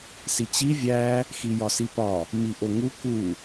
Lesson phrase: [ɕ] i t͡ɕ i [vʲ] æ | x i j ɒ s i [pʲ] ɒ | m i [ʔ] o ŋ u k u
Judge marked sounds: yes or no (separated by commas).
no, yes, no, yes